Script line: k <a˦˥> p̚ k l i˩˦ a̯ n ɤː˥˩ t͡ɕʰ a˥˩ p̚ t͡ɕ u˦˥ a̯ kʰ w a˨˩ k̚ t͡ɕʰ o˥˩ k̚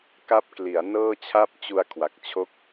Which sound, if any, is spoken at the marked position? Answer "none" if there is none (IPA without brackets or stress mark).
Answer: a˦˥